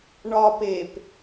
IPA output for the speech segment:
ɳɒ pep

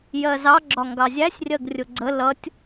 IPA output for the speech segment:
jɜzɑɡ͡ǁɒ ŋɡɑzʲæsʲrʲɜɡ rʲʊɡ͡ǀə lʌtʲ

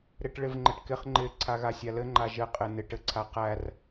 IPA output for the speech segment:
ɾɪʈɭɪvŋ͡ǃɘʈkɪχ ŋ͡ǃɪ ǀʰaɣasʲalɘ ŋ͡ǃaʒɘ qʼɪnɪʈ ɘǀʰaqær

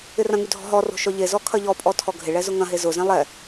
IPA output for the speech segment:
ɪrɐ̃ŋy dʱɔ̤ɦɔro̤ ʃɔʎezɔ kʰɐʎɔpʼɔ tʰɔɡʱɪɭɛ zʊŋɐ̃ɦe zʊzɛ̃ lˠɛ

